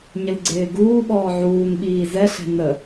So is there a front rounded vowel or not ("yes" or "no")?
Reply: no